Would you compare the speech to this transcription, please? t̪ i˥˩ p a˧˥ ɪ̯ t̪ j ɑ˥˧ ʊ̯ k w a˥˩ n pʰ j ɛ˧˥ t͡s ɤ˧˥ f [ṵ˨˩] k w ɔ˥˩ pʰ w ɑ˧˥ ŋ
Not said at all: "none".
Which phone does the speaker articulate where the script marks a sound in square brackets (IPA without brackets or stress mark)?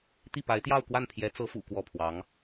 ṵ˨˩